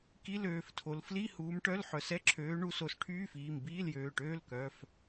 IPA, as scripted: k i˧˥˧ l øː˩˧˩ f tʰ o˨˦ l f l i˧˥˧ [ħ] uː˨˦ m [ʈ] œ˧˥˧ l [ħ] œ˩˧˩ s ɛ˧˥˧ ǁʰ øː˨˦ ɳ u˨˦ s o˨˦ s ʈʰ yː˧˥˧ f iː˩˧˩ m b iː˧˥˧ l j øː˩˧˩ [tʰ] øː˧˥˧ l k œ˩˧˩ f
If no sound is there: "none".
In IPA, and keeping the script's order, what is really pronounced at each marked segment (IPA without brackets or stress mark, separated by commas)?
h, ʈ, ħ, ʈ